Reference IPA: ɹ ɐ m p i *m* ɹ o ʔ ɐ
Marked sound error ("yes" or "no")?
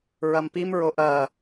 no